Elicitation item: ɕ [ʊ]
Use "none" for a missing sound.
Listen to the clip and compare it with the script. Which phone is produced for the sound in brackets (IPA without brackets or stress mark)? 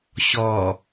ɔ